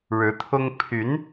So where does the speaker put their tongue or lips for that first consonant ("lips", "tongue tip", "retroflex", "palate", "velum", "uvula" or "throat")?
retroflex